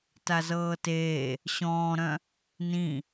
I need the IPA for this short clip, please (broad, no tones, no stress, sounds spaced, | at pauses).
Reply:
t a z ɤː t eː | ɕ ɔ̃ː ɾ œ̃ | n ĩ